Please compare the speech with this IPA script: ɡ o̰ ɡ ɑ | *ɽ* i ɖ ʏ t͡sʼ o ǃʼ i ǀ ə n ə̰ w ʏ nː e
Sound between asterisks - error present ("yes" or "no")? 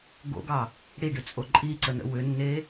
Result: no